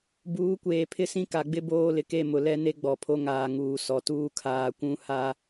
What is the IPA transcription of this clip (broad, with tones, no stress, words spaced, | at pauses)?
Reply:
buː˨˦kʷeː˨ pʰɪ˦sĩ˦ka˨ɡ͡bɪ˦ boː˦lɪ˨ke˦˨ mʊ˨lɛ˦ne˦ ɡ͡bɔ˨pʰo˦ŋaː˨ ŋuː˨ sɔ˨tuː˦ kʰaː˨kʷũ˦ ha˦